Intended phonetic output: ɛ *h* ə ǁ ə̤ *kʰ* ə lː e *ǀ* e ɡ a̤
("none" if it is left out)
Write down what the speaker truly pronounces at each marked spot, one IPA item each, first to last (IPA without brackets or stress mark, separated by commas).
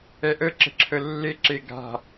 ʔ, ǁʰ, ǁ